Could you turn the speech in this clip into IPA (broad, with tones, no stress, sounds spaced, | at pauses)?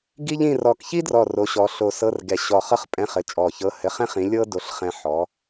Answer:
ɡ i˥ ʎ ĩ˧˥˧ r ɔ˧˩ k ç i˥ d r ɔ˧˩ r o˨˥ ɕ ɔ˨˥ ɬ o˧ s ɤ˧˥˧ r ɡ ɛ˧˩ ɕ ɔ˧˩ χ ɤ˥ χ pʼ ɛ̃˧˥˧ χ ɘ˨˥ t͡ʃʼ ɔ˧˩ ç ɤ˧˥˧ h ɘ˧˥˧ χ ɛ̃˥ χ ĩ˨˥ lʲ ɤ˥ d o˨˥ ɬ χ ɛ̃˧ ħ ɔ˨˥